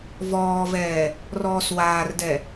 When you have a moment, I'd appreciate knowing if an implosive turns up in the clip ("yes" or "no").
no